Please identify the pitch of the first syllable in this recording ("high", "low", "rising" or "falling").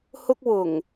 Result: high